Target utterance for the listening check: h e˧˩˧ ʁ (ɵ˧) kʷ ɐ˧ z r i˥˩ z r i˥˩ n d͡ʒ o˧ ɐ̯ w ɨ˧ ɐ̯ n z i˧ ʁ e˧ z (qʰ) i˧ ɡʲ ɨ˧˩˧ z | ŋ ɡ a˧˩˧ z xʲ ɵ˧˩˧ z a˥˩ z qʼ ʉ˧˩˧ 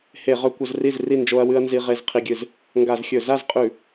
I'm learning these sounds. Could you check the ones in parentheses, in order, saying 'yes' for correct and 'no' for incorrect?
yes, yes

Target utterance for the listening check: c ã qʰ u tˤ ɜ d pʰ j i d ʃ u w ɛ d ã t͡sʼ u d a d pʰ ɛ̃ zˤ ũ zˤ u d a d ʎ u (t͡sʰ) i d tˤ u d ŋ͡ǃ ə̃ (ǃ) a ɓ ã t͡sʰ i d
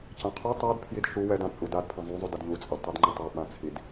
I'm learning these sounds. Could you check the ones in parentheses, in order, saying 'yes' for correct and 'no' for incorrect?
no, no

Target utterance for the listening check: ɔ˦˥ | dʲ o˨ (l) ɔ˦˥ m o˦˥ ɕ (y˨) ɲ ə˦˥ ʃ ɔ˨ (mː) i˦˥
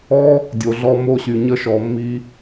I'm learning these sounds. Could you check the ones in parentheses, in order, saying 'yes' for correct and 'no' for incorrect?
no, yes, yes

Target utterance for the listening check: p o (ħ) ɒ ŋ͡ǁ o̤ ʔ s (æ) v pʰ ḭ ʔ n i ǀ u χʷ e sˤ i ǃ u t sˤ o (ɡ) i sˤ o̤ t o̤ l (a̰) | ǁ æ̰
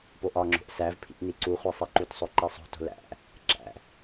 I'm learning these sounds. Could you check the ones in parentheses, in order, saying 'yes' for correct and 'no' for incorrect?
no, yes, no, no

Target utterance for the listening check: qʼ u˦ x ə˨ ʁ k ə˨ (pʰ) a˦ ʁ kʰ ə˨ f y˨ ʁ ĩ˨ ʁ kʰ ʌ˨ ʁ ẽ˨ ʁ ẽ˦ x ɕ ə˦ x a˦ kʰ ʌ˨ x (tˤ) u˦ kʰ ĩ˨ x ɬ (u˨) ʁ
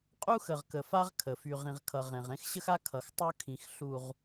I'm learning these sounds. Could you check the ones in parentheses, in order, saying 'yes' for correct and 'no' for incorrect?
no, yes, yes

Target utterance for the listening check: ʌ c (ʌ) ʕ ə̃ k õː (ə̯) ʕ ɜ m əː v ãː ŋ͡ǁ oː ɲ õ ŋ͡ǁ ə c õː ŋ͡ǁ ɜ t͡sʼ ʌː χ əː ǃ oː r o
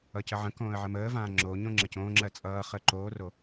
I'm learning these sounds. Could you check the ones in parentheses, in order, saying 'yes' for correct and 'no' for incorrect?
no, yes

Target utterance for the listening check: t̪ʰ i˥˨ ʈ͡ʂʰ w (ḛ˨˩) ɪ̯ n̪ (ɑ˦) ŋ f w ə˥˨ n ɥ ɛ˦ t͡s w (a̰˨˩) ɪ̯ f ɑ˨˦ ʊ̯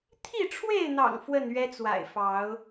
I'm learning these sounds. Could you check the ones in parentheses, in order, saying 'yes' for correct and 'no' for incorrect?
no, no, yes

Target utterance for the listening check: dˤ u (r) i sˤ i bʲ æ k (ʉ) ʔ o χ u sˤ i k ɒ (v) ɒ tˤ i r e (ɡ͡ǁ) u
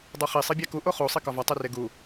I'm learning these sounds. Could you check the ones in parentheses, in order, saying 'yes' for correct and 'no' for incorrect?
no, no, yes, no

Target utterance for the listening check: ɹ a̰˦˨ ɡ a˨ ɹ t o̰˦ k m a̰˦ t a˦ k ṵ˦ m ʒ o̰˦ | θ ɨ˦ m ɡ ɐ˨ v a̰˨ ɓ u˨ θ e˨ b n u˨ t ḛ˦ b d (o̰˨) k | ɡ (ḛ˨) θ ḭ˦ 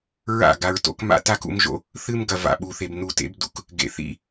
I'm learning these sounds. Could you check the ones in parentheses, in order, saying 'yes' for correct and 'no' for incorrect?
no, yes

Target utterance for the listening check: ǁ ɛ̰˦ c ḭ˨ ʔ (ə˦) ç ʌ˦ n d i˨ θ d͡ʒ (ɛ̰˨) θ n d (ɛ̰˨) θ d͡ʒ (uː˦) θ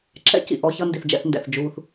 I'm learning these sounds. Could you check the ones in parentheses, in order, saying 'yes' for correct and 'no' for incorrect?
no, no, yes, yes

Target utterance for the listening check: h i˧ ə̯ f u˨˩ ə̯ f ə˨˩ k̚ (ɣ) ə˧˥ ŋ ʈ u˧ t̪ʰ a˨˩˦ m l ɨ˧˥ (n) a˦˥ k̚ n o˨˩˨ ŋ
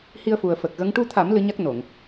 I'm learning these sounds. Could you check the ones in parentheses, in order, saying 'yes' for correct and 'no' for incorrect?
yes, no

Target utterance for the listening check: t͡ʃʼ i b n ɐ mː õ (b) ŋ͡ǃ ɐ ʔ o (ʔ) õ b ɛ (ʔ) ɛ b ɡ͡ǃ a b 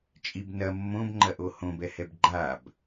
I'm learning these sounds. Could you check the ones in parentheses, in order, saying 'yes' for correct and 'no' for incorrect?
yes, no, no

